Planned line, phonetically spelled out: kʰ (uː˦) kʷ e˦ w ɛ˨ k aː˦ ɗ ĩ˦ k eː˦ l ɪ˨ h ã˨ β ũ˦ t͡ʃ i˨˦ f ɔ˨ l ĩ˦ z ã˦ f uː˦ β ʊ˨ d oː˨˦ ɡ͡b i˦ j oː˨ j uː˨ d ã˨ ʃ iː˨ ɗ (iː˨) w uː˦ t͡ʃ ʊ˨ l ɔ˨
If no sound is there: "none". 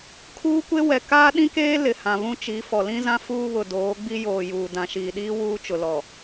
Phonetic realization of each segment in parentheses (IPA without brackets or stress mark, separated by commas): uː˦, iː˦